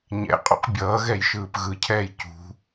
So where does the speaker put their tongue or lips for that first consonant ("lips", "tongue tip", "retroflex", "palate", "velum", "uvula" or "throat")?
palate